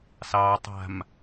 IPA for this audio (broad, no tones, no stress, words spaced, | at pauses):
sɑtˤa̤m